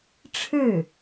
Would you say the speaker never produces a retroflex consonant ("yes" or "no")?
no